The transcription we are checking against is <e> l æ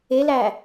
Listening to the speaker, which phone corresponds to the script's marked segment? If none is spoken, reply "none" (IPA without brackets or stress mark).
e